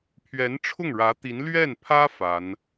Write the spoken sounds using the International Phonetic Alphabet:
pʰ ɥ ɛ˧˥ n ʈ͡ʂʰ ʊ˥˩ ŋ ɻ ä˧˥ t̪ i˧˥ n l ɥ ɛ˥˩ n pʰ ä˥ f a˧˥ n

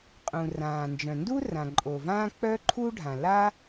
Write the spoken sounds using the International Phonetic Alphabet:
qʼ ũ˩ r ãː˩ n d͡ʒ œ̃˩ n d u˥ r ã˩ ǃʼ o˩ v ãː˥ k͡p œ˥ ǃʰ u˥ ɖʱ ã˩ l a˥

